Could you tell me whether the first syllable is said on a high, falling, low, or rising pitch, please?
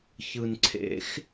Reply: low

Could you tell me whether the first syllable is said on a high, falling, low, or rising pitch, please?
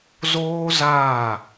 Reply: high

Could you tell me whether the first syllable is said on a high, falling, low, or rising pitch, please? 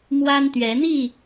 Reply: high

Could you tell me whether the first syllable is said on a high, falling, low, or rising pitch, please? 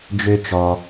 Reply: low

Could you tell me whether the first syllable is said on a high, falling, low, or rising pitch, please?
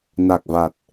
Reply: low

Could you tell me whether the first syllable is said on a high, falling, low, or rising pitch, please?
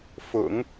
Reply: low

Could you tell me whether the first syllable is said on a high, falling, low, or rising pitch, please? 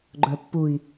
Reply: low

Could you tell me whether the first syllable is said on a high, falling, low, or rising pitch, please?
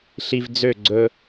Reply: low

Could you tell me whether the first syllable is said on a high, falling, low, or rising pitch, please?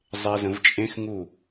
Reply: low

